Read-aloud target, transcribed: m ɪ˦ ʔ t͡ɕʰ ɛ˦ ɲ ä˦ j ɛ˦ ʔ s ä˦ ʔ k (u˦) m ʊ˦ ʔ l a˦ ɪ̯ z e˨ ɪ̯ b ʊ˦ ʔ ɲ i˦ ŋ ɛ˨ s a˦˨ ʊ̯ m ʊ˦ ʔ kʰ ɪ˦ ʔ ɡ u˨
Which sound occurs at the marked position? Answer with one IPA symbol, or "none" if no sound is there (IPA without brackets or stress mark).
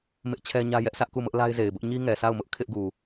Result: u˦˨